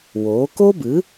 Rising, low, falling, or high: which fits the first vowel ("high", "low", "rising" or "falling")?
rising